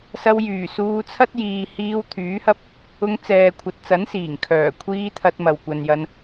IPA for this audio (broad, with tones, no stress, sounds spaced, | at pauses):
s ɐ˧ w j yː˨˩ s uː˧ t͡sʰ ɐ˥ t̚ j iː˨ h iː˧ w t̪ʰ yː˨˥ h ɐ˥ p̚ | ʊ˧ ŋ t͡s ɛː˨ kʷʰ ɐ˨ t̚ t͡s ɐ˨˥ n s iː˨˩ ŋ kʰ œː˨˩ kʷʰ iː˧ t̪ʰ ɐ˧ t̚ m ɐ˨ w kʷ ɐ˨ n j ɐ˧ n